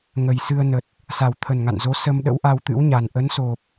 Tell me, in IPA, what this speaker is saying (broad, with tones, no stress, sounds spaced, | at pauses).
ŋ ə˨˩ j s ɨ˧ ə̯ n ə˨˩ t̚ | s a˨˩ w t̪ʰ ə˨˩ n ŋ a̰˧˨ n z o˨˦ s ə˧ m ɗ ə̰˧˥ w ʔ a˧ w t̪ ɨ̰˧˥ w ɲ a˨˩ n ʔ ə˨˦ n s o˨˩ p̚